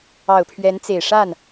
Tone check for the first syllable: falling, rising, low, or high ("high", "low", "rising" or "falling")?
low